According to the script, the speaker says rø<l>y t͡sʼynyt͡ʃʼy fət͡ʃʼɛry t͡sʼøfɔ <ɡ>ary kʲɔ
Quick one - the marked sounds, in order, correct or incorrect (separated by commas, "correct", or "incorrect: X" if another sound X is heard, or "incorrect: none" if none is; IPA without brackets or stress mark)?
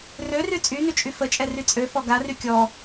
incorrect: r, correct